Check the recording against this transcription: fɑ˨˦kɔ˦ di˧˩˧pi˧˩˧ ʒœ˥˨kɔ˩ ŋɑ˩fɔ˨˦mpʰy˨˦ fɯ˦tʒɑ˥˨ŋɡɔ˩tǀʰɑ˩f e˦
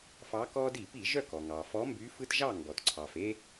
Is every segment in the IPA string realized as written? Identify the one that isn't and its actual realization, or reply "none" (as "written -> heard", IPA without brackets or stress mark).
pʰ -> b